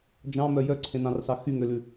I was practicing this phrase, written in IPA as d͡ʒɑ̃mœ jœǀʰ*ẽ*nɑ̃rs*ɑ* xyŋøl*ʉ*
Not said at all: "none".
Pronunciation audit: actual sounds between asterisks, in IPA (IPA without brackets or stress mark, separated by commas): ẽ, ɑ, ʉ